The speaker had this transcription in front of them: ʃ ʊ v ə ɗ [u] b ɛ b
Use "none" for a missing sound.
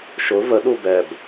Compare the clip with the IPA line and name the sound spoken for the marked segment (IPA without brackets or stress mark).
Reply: u